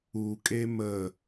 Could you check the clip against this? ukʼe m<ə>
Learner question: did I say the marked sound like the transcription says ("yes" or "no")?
yes